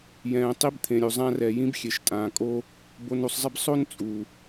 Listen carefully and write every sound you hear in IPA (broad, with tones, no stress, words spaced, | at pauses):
jɛ̃ː˩ tˤi˧bt̪ʰẽ˩ɾʲu˩ zˤã˧rɛ˩ jĩ˧bxʲe˩ʃtʼãː˩kʼo˧ | bo˧nu˧sˤzˤɪ˥b sˤo˥nt͡sʼu˩